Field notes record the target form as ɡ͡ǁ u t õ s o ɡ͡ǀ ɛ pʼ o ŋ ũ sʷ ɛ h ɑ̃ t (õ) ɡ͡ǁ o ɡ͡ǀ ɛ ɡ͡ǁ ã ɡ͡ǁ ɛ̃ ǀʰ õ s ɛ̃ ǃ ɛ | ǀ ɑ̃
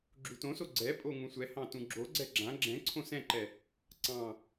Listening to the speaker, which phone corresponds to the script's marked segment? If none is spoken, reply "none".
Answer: ũ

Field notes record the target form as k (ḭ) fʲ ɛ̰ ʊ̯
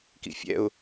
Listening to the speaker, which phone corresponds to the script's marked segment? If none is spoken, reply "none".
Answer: ḭ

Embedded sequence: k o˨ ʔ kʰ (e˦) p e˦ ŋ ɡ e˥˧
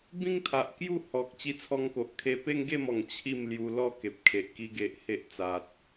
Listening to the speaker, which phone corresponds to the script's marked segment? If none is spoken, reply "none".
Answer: e˧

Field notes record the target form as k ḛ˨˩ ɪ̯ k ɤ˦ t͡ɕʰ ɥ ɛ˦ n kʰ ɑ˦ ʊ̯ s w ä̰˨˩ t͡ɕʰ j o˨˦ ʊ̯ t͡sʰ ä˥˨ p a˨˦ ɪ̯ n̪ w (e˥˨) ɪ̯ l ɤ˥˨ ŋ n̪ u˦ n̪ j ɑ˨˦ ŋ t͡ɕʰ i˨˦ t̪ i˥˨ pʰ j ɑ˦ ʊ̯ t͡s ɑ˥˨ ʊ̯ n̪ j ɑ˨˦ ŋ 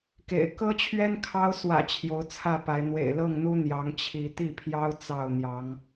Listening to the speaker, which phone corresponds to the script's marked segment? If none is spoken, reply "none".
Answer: ḛ˨˩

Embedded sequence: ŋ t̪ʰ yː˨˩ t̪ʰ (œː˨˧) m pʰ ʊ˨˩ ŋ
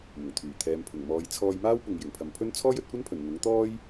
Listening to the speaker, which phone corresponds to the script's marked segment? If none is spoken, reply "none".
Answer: ɛː˨˧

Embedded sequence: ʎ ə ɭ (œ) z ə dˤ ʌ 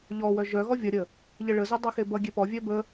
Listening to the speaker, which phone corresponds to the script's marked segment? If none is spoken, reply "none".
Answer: ə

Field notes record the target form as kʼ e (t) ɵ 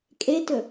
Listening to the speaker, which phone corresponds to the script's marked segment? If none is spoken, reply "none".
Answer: t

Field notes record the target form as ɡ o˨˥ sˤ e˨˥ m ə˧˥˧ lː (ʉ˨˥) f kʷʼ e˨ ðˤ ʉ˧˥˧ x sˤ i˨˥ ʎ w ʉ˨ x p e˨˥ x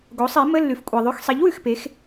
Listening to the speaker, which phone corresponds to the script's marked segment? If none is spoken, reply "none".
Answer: ʉ˨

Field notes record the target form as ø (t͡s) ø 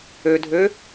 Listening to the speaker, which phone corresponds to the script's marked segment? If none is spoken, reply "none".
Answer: dʱ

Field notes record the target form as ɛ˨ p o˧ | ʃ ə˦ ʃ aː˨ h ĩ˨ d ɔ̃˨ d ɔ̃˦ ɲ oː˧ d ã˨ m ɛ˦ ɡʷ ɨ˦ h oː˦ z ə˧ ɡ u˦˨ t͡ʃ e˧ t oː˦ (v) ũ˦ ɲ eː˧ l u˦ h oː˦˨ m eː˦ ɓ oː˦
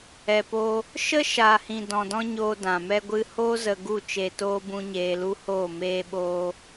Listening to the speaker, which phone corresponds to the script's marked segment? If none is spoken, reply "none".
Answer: b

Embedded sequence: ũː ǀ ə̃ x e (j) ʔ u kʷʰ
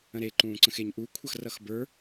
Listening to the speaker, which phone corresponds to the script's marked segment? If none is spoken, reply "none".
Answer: ɲ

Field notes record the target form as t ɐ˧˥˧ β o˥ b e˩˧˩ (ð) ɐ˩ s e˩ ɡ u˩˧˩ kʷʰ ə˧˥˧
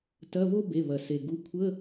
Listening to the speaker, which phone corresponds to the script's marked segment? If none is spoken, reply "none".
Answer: β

